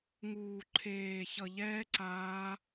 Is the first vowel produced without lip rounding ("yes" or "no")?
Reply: no